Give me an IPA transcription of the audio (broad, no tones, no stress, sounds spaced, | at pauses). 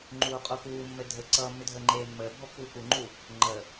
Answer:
ŋ͡ǃ uː qʼ u k uː mː ɘ dʱ ə ǀ ʌː mː ʏ dʱ əː ŋ͡ǃ eː mː əː bʱ ɔ pː uː k u ŋ͡ǃ u | ŋ͡ǃ ə